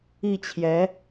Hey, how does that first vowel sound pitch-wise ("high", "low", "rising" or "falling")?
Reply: falling